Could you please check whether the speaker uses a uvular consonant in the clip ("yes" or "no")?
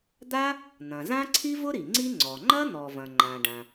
no